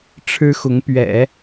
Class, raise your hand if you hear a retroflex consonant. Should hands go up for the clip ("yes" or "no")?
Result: yes